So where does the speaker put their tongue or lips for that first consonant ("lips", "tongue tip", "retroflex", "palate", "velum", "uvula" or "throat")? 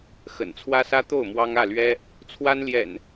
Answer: velum